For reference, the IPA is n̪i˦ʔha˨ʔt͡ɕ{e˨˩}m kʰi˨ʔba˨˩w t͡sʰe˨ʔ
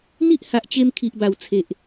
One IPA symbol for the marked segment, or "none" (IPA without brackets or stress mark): e˧